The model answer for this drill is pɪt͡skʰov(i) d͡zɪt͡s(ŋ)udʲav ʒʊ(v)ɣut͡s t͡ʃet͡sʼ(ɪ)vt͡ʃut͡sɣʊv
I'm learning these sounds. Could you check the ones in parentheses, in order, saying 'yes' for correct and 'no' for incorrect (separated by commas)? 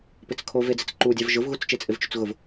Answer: no, no, yes, yes